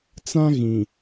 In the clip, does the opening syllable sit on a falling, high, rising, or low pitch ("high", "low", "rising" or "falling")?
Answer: high